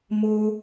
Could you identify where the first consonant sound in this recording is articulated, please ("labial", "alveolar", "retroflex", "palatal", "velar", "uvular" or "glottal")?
labial